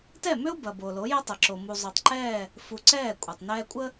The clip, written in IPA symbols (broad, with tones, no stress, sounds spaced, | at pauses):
t ɛ˦˨ m ʏ˦ ʊ̯ b ɐ˨ b o˨ l o˨˦ j ɐ˦ tˤ ɐ˨ ǁ o˨ m u˨ zˤ ʏ˨ tˤ ǃ ɛː˦˨ | f u˨ ǀ ɛː˦˨ kʷʼ ɐ˨ tˤ n ɛː˦ kʷʼ ə˦